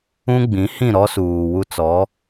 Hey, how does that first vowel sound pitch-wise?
high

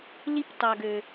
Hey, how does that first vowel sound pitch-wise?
high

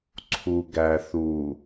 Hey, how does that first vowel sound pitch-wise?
low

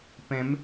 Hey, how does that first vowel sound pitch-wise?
rising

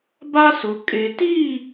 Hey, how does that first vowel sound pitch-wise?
high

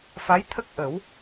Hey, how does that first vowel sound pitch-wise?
rising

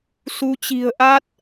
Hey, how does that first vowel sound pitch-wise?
rising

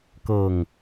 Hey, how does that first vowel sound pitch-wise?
low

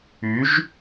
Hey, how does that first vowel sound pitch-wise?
rising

